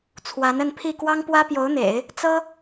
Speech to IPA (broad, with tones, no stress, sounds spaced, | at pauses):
t͡sʰ w a˧˥ n ə˥˧ n pʰ i˥˩ k w ɑ˥ ŋ p w ä˥ p j o˧˥ ʊ̯ n̪ ḛ˨˩˦ ɪ̯ | t͡s ɤ˥